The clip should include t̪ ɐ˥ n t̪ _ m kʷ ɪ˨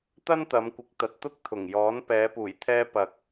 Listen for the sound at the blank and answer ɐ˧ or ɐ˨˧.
ɐ˨˧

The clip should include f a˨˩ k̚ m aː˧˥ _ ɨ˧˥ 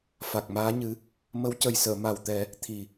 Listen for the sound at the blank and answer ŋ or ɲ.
ɲ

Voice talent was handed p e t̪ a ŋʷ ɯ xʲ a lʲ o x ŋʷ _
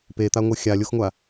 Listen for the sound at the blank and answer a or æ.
a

